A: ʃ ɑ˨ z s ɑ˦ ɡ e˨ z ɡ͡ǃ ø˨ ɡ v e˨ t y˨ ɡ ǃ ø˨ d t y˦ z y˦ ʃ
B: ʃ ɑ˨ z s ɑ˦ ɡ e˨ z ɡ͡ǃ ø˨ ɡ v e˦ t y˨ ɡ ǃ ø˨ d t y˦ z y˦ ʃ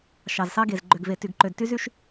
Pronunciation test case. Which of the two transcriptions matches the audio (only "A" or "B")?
A